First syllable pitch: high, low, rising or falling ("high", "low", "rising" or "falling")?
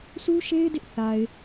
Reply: high